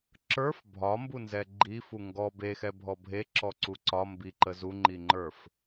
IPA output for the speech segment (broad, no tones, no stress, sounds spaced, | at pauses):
ǁ ə˞ f bʱ ɒ m b u n z ɛ ɡ͡ǃ i f u ŋ ɡ ɔ b e x ɛ bʱ ɔ bʱ e ǁ ɔ ǀ u ǀ ɒ m b i ǃ ə z u ŋ͡ǃ i ŋ͡ǃ ə˞ f